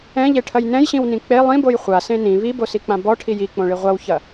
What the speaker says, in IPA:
ɛ̃ ʎ e ʈʰ ɐ j n ɛ̃ j ɕ ĩ w n ĩ k͡p e lˠ ĩ b o j χʷ a s ẽ n ĩ β i b o s i k͡p ã b ɔ ʈʰ i j i k͡p õ ɭ i ʁʷ a w ç ɐ

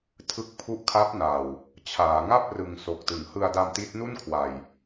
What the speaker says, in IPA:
tʰ ɯ˦˥ k̚ pʰ u˦˥ ʔ kʰ a˦˥ p̚ n a˨˩ w | t͡ɕʰ aː˩˦ ŋ a˥˩ p̚ r ɯ˨˩ ŋ s o˨˩ k̚ t ɯ˩˦ ŋ h ɯ˧ a̯ d a˧ m t i˦˥ t̚ n u˥˩ n kʰ w a˨˩ j

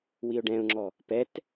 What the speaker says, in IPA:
w i ʊ̯ ɖ ɛ̃ ʊ̯ ŋ͡ǁ ɔ | p ɛ t

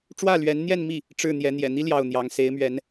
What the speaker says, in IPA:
ʈ͡ʂ w ä˥˩ l ɥ ɛ˧˥ n n̪ j ɛ˥˧ n m i˥˩ | ʈ͡ʂ ɻ̩˥˩ n̪ j ɛ˧˥ n̪ j ɛ̰˨˩ n̪ i˥ l j ɑ˥˩ ʊ̯ n̪ j ɑ˧˥ ŋ s e˧˥ ɪ̯ m ɥ ɛ˧˥ n

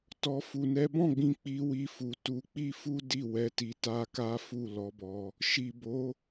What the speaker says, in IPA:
t ɔ˧ f u˨ n ɛ˨˦ b ɔ̃˦˨ ɡ͡b ĩ˧ k͡p i˧ w i˧ f u˨ t u˧ k͡p i˦ f u˦ d i˦˨ w ɛ˧ t i˧ t a˦ k a˦ f u˦˨ l ɔ˨˦ b ɔ˧ | ʃ i˨ b o˨˦

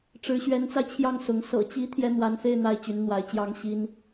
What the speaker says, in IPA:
ʈ͡ʂ ɻ̩˧˥ ɕ ɥ ɛ˧˥ n t͡s a˧ ɪ̯ t͡ɕʰ j ɑ˥˩ ŋ s ʊ˧˥ ŋ s ɤ̰˨˩ t͡ɕ i˧˥ t̪ʰ j ɛ˥ n̪ w a˧˥ n f e˥˧ ɪ̯ n̪ a˥˩ ɪ̯ t͡ɕ y˧˥ n n̪ w a˧˥ ɪ̯ t͡ɕ j ɑ˥ ŋ ɕ i˥ n

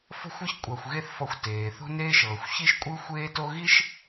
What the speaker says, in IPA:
f ɔ̤˥ xʷ ɯ˥ ç kʷʼ a˧ xʷ ɣ e˥ θ f ɔ˧ xʷ t eː˩ θ o̤˥ n eː˥ ʃ ɤː˩ xʷ ç i˥ ʃ kʷʼ ɯ˥ xʷ eː˥ t o˥ ɣ i˥ ʃ

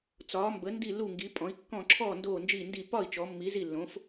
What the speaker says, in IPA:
t͡s ɒː˧˥ m b ə˧˥ n d i˥˧ l u˥˧ ŋ ɡ i˧˥ pʼ ɔ̃˧˥ i̯ kː ɔ̃˥˧ ǁʰ ɔ˥˧ n d oː˥˧ n d͡ʒ iː˥˧ n d i˥˧ p ɒ˥˧ i̯ t͡ʃ ɔ˧˥ mː i˧˥ z i˥˧ lː õ˧˥ f

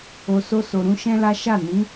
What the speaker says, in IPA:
o˨ s o˧ s o˨ ɾ ũ˧ ʃ ɛ̃˦ l a˦ ʃ a˦˨ n ĩ˨˦

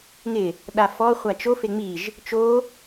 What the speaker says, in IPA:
ŋ ɪ | ɗ a f ɔ χʷ a t͡ʃ o f e ŋ͡m i ʒ | t͡ʃ o

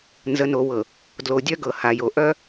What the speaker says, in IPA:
n z ə˨ n o˨ w ɤ˨ | d l o˨ dʲ œ˦ ɡ ɤ˨ h a˨ j o˨ ʔ œ˦

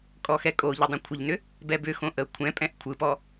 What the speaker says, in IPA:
kʼ ɔ x ɛ kʼ o ʎ ə dˤ ə̃ kʷʰ ɪ ʎ n ʏ | b ɛ b ʏ x õ ʔ ə kʷʰ ɛ̃ pʼ ɛ̃ ʔ kʷʰ ɯ p ɔ

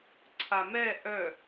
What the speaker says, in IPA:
ǀʰ a m ɛ ʔ œ

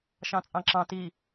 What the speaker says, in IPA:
ʃ ɑ̃ t͡sʼ ɑ̃ ǁ ɑ̃ t i

